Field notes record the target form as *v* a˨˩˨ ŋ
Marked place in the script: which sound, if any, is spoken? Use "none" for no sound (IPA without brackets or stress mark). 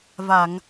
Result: v